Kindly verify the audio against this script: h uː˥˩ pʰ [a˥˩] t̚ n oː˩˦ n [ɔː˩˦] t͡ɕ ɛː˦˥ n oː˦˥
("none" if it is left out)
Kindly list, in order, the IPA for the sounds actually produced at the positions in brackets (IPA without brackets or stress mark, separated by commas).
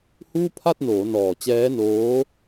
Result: a˥˩, ɔː˨˩